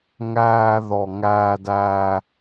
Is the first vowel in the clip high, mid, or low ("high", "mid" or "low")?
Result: low